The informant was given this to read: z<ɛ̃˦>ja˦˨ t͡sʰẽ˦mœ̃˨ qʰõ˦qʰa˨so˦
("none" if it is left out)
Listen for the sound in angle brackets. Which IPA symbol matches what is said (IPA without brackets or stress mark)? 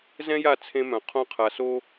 ɛ̃˦